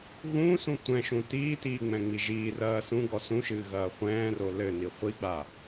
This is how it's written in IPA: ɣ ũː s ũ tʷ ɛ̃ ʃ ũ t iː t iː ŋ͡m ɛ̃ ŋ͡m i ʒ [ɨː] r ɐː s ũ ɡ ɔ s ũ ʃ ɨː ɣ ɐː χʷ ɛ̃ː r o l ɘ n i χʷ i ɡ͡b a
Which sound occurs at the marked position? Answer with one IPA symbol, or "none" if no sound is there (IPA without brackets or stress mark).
iː